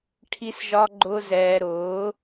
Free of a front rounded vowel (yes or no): yes